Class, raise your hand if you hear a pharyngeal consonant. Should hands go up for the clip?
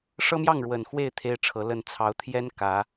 no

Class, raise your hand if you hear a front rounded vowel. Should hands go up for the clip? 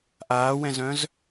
yes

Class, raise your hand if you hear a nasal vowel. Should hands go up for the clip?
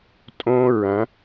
yes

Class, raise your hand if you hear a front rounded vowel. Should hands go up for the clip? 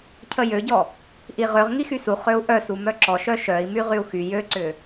yes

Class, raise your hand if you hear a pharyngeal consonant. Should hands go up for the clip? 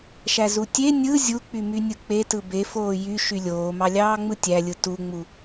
no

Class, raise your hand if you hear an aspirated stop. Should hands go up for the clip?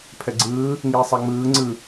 yes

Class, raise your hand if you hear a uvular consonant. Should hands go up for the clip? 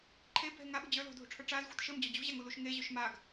no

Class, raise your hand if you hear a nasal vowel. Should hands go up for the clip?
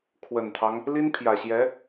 no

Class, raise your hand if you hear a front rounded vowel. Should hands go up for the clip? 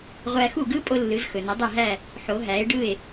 no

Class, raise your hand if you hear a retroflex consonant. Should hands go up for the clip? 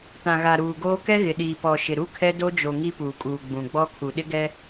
no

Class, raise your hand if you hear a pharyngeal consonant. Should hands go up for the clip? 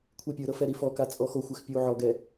yes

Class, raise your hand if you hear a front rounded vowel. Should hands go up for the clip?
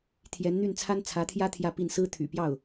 yes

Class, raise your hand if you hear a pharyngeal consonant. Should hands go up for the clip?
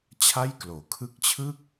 no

